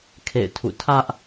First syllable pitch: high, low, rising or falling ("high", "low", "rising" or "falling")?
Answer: falling